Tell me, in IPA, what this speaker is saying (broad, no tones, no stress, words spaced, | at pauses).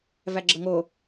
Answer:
væɡ͡ǁəŋo